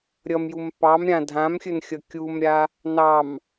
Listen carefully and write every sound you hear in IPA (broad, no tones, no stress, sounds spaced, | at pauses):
ɾʲ ʌ m j u m p ɑ m ɾʲ ã dʱ ã m xʲ ɵ n xʲ ʌ kʲ u m ɾʲ a | n ɑ m